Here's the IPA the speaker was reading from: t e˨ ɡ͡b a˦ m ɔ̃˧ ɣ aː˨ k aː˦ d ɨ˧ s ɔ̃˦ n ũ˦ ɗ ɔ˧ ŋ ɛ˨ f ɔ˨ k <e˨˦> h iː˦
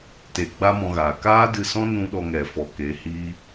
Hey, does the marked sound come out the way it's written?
yes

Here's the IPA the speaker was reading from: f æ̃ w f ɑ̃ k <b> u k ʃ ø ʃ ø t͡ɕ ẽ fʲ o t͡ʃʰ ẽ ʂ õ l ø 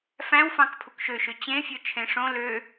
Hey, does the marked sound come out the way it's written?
no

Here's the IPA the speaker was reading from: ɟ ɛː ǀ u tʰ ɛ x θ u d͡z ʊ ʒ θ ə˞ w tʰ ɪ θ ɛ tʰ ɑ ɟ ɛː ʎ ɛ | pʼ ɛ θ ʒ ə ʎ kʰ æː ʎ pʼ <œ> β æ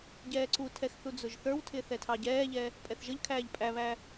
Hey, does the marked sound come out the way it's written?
no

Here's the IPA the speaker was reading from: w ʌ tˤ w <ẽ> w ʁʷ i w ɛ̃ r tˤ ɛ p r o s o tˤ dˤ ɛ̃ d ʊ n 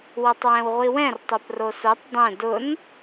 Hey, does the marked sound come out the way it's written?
no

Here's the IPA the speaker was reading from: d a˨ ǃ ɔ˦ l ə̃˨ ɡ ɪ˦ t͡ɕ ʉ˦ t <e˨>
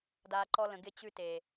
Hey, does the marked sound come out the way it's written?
yes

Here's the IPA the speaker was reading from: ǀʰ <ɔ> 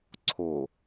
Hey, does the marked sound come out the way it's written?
no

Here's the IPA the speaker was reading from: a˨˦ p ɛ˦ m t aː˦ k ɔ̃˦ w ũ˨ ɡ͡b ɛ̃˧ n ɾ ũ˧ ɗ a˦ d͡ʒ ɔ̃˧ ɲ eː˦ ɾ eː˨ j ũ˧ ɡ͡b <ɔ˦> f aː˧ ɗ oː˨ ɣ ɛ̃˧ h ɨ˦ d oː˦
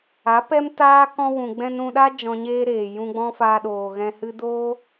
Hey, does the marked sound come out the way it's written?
no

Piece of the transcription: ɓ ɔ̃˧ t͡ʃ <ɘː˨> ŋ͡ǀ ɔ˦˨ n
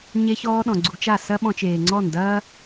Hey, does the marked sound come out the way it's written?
no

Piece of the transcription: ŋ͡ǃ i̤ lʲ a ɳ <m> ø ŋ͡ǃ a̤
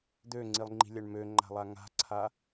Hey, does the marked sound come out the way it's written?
yes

